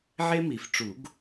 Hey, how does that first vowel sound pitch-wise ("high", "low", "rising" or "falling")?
high